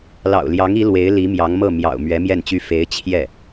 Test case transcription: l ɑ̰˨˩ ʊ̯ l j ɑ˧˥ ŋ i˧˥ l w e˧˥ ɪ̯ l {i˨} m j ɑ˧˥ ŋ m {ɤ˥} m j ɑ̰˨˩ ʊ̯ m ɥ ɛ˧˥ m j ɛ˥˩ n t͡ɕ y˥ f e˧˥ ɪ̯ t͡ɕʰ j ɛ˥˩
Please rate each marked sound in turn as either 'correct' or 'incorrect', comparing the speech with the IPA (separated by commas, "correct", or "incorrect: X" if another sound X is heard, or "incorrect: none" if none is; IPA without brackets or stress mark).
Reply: incorrect: i˧˥, incorrect: ɤ˥˩